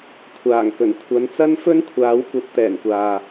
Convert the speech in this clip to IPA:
kʷʰaː˨˩ŋkɵ˨˩n kʷʰɐ˨˧nt͡sɐ˥n fɵ˥nkʷʰaː˨˥wkʷɐ˨˥p̚ t̪ɛː˨˩nkʷaː˨

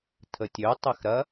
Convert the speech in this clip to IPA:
tʰətʲø tˤɛxɾɐ

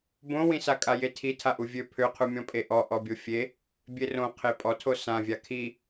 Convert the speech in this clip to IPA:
bõwĩsakʼa jetʰi tʰaʔuvʲø pʰøqʰumʲɔ̃pʼe ʔɔ ʔɔbʲofʲe | bʲerõ qʰepʼɔtʰo sãvʲa kʰi

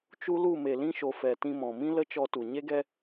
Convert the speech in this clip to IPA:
t͡ʃu˦lu˦˨ me˨lĩ˦ʃo˨ fɛ˨tĩ˧mɔ̃˨mĩ˦ lə˦t͡ʃɔ˧tu˨ ɲe˦ɡɛ˦

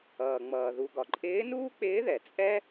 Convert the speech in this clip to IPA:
ʌː˩ŋ͡mʌː˩ ðu˩ɡɒ˩ ǃʼɪː˧˥nuː˥k͡pɪː˧˥ðɛ˩ t͡sʼɛ˥

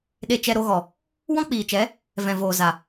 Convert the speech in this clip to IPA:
ɗe˧t͡ʃɛ˧ɾo˧ɣɔ˨ | wɔ̃˦k͡piː˨t͡ʃɛ˨˦ | vɛ̃˨voː˨za˨

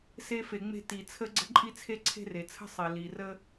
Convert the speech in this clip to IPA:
se˧fe˩ŋ͡me̤˧ ti˩t͡sʰə˧ ɡ͡ǀə̤˧ǃʼi˧t͡sʰe˧ ǀʰe̤˧re˩t͡sʰə̤˧ sˤe˩li˩rə˧

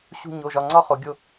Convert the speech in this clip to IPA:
ɕṳ˦˨ɲo˩˧˩ʒɒ˩˧˩ ŋ͡ǀɒ˥χo˩˧ ɡʲo˦˨

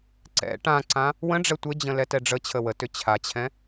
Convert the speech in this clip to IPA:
ǀɛ̰ ʈãǀã | wə̃ɖ͡ʐɛ tʷɘd͡ʑə̃ lɛtɛɖ͡ʐət͡ɕʰə wətʏ t͡ɕʰat͡ɕʰɛ̃

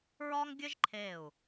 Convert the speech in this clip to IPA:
ɹɒː˥ŋɡʲɘ˥ʒǃʰeː˧˩u̯

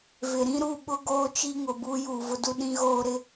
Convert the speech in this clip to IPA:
vɪ˨ɾĩ˦ɾu˦˨ɓʊ˦ ɡoː˦t͡ʃi˦ŋʊ˨ buː˦juː˨vʊ˦du˦ ɗĩ˦ɣoː˦ɾɪ˦

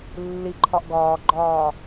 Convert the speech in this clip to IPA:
lːiǃʰɒʔ ɡɒːɡ͡ǃɒː

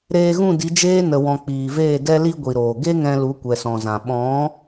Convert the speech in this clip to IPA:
ɾeː˧ɣũ˦˨di˨˦d͡ʒeː˦ nə˧wɔ̃˧ k͡piː˨veː˦˨ dɛ˧li˧ ɡʷi˨ɾoː˨ ɡe˦ŋɛ̃˧ lu˨˦kʷɛ˨sɔ̃˨zã˨ ɓɔ̃˨˦

